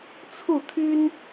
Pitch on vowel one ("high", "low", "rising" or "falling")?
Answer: falling